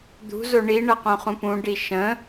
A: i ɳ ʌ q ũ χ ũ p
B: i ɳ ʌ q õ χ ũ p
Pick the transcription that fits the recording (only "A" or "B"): B